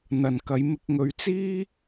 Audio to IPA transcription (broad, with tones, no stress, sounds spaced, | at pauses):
n̪ ɐ˨ n k ɐ˨˧ j m ɪ˧ k̚ ŋ ɵ˨˧ ɥ t͡s iː˥